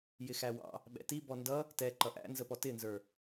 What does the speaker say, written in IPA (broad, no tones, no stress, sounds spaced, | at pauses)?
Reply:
j ɪ x æ w ɑ̰ | ɓ ɛ̰ t i b ɔ n d ʌ | t ɛ ǃ ʌ ʔ æ̰ n z ə p ɔ t ɪ n z ə˞